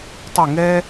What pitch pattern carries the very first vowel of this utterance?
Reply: falling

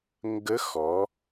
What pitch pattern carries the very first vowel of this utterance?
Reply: rising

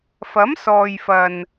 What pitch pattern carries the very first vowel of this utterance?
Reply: rising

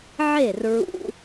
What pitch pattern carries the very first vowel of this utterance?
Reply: falling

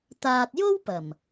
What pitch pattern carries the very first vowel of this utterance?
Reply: low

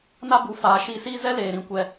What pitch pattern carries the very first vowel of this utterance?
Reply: high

